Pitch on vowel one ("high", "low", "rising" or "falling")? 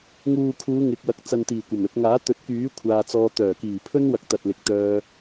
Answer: low